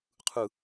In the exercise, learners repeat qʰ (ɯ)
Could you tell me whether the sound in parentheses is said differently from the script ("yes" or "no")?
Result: no